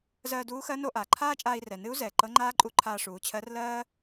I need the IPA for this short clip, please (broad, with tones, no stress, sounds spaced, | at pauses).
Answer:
z ɜː˧ d uː˧˥ x ɜ˧˥ n o˧ ʔ aː˩ ǃʰ aː˥ t͡ʃʼ aː˧ i̯ r ɛ˩ n ɨ˧˥ u̯ z ɛː˩ ǃ ɤ˧˥ ŋ͡ǃ aː˥ ǃʼ u˧˥ ǃʰ aː˧ ʂ uː˩˧ t͡ɕʰ ɜ˧˥ r l ɜː˥